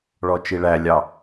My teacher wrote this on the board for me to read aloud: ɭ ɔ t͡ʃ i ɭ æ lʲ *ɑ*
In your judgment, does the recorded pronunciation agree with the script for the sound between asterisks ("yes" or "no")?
yes